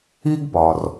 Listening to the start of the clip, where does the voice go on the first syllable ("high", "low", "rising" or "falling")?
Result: high